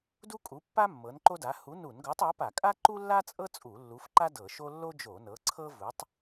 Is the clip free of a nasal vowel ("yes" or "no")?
yes